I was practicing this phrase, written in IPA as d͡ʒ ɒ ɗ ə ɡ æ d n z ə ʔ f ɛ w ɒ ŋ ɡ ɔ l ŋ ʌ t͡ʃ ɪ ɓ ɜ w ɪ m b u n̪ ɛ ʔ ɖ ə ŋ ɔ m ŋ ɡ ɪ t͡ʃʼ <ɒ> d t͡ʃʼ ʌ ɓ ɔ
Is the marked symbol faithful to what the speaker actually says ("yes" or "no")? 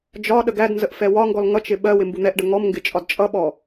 yes